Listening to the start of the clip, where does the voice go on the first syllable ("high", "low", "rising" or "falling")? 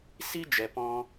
high